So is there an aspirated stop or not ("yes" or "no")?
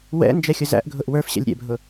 no